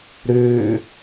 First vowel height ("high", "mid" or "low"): high